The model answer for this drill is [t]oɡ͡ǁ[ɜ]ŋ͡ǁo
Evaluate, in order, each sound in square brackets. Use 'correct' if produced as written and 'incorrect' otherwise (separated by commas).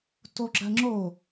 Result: correct, correct